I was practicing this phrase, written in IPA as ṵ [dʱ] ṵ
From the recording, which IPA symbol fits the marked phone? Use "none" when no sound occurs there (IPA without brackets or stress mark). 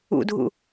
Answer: dʱ